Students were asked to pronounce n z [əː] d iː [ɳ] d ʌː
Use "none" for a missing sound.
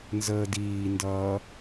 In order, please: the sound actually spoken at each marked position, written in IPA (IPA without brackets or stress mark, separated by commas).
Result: əː, n